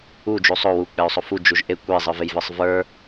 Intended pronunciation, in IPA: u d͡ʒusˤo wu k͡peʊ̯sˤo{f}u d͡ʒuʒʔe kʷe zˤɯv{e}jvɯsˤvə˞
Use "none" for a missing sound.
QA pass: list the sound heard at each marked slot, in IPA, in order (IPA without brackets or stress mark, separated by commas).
f, e